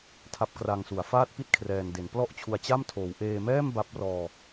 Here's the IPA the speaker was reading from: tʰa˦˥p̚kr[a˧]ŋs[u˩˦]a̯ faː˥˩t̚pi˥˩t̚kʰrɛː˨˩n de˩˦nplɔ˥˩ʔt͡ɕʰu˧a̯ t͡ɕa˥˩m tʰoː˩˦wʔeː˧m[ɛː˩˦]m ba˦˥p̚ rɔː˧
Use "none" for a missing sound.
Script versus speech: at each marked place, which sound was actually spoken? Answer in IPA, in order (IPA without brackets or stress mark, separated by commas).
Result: a˧, u˩˦, ɛː˥˩